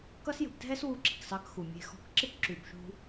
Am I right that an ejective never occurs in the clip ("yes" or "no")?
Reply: yes